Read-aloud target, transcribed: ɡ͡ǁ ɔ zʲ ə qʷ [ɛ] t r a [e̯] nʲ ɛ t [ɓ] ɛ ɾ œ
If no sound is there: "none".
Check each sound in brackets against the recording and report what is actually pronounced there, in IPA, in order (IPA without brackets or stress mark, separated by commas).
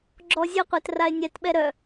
ɛ, e̯, ɓ